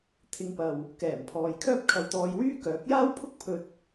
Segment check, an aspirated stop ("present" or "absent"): present